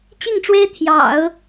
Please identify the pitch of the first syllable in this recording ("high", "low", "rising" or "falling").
falling